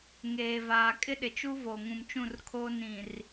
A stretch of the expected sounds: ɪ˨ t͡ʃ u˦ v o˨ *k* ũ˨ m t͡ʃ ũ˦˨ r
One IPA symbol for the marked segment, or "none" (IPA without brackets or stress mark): ŋ